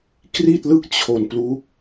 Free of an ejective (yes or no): yes